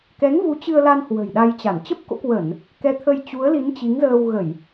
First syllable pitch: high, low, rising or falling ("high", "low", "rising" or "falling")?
rising